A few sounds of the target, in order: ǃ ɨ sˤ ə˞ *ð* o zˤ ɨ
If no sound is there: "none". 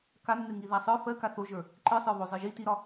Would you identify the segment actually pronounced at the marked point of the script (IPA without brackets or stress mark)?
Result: β